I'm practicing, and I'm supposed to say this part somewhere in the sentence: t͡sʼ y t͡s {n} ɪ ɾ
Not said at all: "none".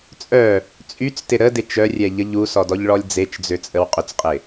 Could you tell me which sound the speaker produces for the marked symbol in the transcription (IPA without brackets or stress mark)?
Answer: t